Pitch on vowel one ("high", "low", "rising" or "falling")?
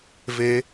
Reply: rising